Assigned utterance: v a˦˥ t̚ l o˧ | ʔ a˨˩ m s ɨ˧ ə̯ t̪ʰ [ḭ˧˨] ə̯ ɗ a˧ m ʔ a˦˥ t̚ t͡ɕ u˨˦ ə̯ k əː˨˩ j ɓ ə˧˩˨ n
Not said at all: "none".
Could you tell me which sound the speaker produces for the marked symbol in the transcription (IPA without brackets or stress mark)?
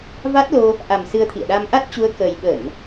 ḭ˧˨